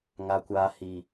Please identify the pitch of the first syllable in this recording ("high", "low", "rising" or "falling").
high